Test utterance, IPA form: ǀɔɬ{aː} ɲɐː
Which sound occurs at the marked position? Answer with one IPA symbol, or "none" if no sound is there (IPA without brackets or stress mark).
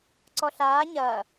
aː